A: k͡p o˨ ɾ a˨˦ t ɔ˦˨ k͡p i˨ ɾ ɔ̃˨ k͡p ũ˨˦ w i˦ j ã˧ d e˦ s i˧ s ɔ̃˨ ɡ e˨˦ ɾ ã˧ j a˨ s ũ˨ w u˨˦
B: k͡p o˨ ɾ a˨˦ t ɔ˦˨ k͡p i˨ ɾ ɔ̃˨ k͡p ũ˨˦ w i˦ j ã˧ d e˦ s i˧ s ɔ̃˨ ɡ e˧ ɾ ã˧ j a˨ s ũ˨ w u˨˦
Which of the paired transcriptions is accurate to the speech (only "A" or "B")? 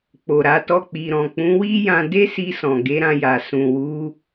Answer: A